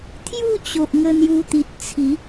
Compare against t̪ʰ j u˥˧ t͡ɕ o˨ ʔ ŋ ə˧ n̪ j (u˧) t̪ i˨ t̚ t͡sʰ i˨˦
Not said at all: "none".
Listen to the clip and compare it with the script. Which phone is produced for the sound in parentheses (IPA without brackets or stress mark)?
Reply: u˧